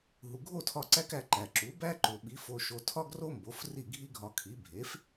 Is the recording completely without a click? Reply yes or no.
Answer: no